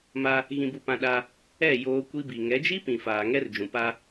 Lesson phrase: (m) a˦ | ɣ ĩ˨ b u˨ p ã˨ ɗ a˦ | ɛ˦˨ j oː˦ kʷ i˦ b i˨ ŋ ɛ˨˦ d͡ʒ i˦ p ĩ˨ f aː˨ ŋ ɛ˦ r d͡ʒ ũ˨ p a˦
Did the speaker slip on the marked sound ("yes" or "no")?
no